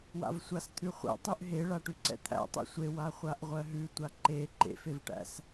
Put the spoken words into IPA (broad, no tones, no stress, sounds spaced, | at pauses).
w a̰ v sʷ a s t̪ʰ ʉ χʷ ɛ̰ tˤ ʉ ʔ ɦ e ɭ a ʈ ʉ ǀ ɛ̰ t̪ʰ æ̰ tˤ ḛ sʷ e w a χʷ a ʔ ʁʷ ɜ ɦ ʉ tʷ a ǃ e ǃ ḛ f e v ʈ æ̰ s